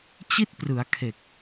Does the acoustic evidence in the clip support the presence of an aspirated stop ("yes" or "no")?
yes